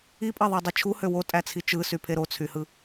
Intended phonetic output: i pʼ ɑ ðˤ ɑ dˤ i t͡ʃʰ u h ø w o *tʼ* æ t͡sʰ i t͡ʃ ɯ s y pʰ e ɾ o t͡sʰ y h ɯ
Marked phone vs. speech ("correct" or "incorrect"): correct